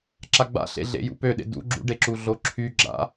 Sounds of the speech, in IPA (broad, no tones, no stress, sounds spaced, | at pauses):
ǁ a ɡ͡b a̰ ɬ ḛ ɮ ḛ j ṵ p ø ɗ ḛ d ṵ ɡ͡ǁ ṵ ɖ e ǁ u ɮ o ǁʰ y ɡ͡ǁ a̰